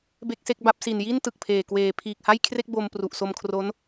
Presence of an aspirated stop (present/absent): present